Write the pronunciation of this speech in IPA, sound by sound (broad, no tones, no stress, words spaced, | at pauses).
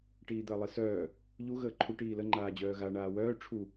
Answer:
ʈiːd̪əːlˠisœː | ʎu ɣəːǃʰu ʈiːlə ŋ͡ǃaːd͡ʑœːɣa ɳaːwœː ʈ͡ʂʰu